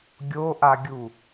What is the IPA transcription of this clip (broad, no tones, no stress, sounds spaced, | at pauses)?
ɡʲ o ʔ a ɡʲ u